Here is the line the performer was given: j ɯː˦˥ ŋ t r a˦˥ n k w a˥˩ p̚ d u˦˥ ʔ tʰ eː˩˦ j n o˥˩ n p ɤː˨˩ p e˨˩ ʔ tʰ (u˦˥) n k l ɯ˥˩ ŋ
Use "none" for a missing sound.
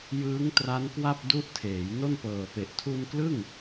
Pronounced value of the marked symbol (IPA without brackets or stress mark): u˧